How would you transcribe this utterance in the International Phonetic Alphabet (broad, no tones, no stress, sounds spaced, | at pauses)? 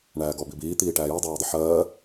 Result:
ɳ æː ɡ ɔ b i b iː t̪ iː ʈ æː j ʊ dˤ æː dˤ ɪ ħ ɜː